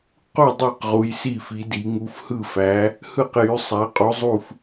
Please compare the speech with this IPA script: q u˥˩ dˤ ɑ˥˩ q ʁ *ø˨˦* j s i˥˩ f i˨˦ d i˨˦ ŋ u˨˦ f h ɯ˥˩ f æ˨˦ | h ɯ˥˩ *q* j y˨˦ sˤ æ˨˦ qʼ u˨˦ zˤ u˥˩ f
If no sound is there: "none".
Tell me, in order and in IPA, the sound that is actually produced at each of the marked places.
u˨˦, q

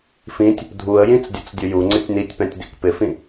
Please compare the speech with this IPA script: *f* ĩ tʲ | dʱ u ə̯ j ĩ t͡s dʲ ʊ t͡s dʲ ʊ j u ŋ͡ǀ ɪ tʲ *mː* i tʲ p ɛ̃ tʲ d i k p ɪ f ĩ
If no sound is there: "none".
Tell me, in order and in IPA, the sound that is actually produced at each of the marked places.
f, n

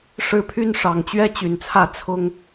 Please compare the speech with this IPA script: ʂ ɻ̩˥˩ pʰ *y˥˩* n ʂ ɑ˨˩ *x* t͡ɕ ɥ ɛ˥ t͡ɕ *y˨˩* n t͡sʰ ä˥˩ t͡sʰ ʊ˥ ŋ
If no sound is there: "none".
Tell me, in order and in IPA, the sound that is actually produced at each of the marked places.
y˥, ŋ, y˨˩

